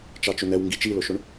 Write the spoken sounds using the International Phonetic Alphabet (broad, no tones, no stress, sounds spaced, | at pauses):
t͡ʃ ɑ t͡ʃ ʊ n ɛ w ŋ ɡ i t͡ʃ i l ʊ ʃ ʊ ɳ